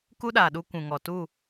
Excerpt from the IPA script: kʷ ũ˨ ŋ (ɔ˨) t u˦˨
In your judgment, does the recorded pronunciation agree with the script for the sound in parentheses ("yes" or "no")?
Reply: yes